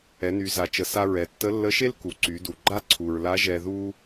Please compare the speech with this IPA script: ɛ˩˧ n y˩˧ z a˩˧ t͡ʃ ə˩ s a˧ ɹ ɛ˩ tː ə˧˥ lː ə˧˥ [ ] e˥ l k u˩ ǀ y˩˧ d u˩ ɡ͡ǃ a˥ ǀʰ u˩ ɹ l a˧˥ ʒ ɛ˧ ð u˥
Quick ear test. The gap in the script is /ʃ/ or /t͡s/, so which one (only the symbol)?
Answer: ʃ